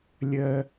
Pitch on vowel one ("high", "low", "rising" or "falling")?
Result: low